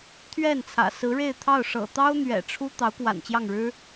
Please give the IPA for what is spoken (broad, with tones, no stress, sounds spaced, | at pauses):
t̪ʰ ɥ ɛ˥˩ n t͡sʰ ä̰˨˩ s ɹ̩˧˥ ɻ e˥˧ ɪ̯ t̪ʰ ɑ˥˩ ʊ̯ ʂ ɤ̰˨˩ t̪ ɑ˥ ʊ̯ n̪ ɥ ɛ̰˨˩ ʈ͡ʂʰ u˥ t̪ ɑ˧˥ ʊ̯ k w a̰˨˩ n t͡ɕ j ɑ˥˩ ŋ ɻ ɻ̩˥